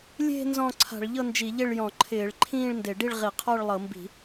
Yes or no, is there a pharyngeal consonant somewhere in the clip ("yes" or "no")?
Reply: no